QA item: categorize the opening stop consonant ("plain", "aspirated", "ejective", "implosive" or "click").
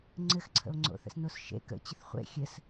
click